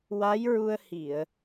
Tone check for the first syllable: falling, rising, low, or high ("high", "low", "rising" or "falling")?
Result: rising